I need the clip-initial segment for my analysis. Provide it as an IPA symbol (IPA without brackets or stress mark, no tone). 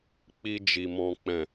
k͡p